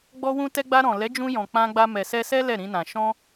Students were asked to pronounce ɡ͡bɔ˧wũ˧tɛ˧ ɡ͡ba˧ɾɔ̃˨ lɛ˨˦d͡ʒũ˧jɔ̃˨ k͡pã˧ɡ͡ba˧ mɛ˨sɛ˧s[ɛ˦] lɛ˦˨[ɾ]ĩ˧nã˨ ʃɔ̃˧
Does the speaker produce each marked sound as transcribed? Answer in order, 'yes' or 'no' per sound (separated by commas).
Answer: yes, yes